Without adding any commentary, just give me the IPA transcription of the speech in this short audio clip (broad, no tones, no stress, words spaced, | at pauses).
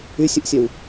ysʲəʔsʲœw